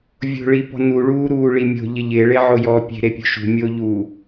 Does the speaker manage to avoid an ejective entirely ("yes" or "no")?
yes